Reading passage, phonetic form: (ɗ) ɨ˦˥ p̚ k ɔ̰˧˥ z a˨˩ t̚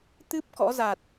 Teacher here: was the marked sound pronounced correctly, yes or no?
no